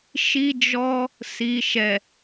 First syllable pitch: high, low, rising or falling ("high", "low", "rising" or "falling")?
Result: high